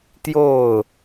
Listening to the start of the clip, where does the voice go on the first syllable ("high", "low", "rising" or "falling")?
falling